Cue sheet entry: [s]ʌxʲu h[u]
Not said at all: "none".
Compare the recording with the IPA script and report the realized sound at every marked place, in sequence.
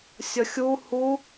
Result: sʲ, u

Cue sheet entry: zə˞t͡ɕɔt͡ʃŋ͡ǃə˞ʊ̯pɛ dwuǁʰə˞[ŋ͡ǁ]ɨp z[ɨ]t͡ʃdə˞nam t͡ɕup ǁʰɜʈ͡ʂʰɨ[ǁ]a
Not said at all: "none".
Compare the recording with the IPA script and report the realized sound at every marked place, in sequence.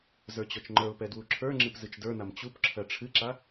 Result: ŋ͡ǁ, ɨ, ǁ

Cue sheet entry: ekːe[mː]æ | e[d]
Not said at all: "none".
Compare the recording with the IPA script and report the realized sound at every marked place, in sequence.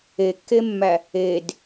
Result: mː, d

